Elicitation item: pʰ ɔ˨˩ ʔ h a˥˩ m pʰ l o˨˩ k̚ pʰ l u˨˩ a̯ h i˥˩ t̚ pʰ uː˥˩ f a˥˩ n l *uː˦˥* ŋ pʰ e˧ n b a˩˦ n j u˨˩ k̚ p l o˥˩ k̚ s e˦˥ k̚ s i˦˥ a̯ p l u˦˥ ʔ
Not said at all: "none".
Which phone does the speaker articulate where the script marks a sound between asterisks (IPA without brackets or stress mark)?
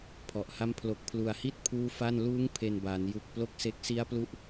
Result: uː˦˥